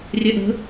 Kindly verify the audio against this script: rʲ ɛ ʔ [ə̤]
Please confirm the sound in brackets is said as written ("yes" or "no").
yes